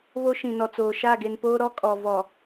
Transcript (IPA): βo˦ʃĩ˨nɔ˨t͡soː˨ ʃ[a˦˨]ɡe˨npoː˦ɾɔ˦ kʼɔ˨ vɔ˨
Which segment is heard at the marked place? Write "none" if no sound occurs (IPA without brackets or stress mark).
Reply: a˦˨